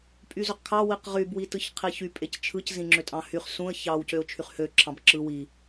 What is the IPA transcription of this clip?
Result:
pʼyzøqkʰɑ wiqʁyb witɯçqʰiçy pʼect͡ʃʰɯc zĩŋ͡ǁøtʼɑ̃hyχ sũə̯ çɑw cøʊ̯t͡ʃʰyχhø ǁʰɑ̃bǁɯ wi

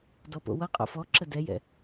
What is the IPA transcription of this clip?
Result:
dɔpo̰wʌqʼo̰ fɔ ǁədɛjɛ̰

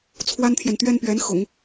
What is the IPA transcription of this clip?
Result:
t͡sʰwa˥nt̪ʰjɛ˨nt̪ɥɛ˥npɥɛ˧˥n xʊ̰˨˩˦ŋ

